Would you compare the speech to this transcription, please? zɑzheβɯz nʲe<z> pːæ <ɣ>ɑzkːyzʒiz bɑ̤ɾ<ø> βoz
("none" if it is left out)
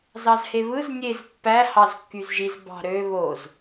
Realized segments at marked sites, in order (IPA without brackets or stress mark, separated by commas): z, h, ø